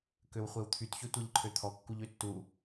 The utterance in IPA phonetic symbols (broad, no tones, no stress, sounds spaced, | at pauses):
k ø w χʷ e w t̪ʰ y t ç ɵ tʷ e ʎ ǃʰ ø t̪ʰ ɔ kː u ʎ ø tː u